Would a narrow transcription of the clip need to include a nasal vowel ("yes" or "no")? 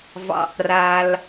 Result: no